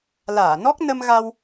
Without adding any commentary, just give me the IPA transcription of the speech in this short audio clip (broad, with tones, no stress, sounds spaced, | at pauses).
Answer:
l aː˧˩ n ɔ˦˥ k̚ n ə˧ m ɣ a˧ w